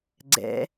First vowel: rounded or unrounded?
unrounded